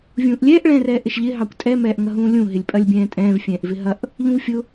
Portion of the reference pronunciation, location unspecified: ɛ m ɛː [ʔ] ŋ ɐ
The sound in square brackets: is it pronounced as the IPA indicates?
yes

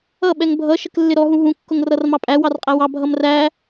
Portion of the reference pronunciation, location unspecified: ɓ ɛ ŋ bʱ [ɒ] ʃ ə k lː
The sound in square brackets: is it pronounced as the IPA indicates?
no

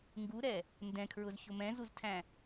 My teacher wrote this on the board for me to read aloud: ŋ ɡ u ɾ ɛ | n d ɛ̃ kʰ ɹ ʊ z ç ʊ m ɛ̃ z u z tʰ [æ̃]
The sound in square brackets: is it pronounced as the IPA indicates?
yes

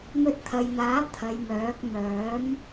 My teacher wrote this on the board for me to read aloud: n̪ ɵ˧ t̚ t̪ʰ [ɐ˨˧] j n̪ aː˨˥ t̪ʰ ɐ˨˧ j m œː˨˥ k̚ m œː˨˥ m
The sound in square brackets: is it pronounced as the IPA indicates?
no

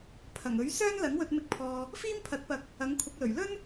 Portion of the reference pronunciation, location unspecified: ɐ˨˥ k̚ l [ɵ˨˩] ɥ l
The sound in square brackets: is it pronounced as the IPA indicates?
yes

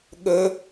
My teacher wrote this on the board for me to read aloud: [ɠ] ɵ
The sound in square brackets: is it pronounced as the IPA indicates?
yes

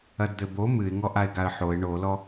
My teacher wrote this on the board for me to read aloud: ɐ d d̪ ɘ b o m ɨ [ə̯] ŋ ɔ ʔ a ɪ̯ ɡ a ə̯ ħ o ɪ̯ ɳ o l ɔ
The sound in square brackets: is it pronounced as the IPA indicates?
no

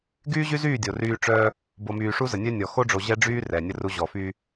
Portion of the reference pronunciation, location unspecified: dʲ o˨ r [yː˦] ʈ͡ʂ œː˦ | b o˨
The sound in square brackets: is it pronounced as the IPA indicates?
yes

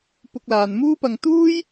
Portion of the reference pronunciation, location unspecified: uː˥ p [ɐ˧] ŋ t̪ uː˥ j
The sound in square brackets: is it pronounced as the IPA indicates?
yes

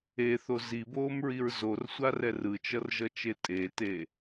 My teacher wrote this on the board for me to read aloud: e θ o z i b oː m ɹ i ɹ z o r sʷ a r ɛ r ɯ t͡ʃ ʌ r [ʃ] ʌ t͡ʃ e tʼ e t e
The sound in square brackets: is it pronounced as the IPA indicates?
no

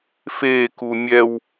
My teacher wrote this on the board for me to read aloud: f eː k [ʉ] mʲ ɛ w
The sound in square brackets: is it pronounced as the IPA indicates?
no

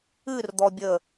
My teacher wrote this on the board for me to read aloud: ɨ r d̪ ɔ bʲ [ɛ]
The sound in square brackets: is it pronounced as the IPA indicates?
no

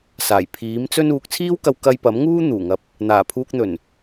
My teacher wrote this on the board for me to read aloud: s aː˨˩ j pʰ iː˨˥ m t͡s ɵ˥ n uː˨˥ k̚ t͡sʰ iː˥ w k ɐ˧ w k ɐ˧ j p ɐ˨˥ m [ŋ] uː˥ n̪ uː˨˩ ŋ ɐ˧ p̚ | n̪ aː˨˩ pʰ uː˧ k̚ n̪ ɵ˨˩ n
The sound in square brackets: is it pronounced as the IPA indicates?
yes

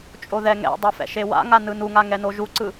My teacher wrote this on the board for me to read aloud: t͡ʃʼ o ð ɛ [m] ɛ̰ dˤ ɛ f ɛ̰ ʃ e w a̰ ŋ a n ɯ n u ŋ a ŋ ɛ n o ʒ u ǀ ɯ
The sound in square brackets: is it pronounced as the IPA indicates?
no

